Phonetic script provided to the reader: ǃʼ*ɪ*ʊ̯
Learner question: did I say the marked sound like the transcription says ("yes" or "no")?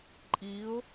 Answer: no